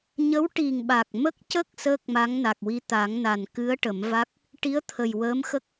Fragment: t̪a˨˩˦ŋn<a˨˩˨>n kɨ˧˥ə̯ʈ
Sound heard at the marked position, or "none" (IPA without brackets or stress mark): a˨˩